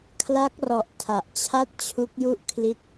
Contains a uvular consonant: no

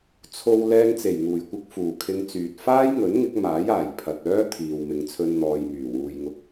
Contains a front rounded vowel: yes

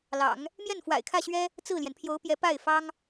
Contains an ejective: no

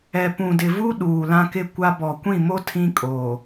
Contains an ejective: yes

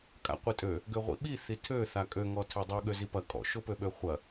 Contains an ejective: yes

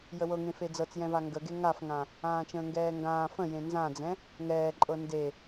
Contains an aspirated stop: no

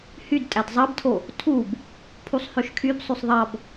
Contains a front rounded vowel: yes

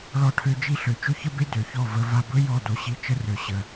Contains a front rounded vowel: yes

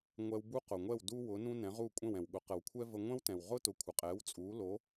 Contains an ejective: yes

